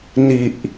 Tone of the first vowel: low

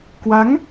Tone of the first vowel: rising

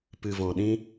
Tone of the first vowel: low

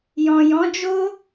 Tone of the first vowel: low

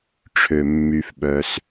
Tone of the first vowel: low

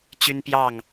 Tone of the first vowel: high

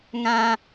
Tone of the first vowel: high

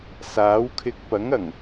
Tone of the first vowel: rising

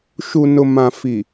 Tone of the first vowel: low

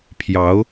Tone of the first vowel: rising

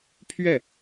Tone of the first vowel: falling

